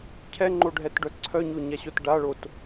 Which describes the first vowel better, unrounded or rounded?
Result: unrounded